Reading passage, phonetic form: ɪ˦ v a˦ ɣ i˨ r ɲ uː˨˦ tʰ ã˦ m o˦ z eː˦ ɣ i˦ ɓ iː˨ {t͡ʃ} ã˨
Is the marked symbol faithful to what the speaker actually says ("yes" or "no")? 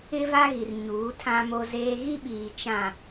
yes